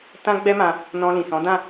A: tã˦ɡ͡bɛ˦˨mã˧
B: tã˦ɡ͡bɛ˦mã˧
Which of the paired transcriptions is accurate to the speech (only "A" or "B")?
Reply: B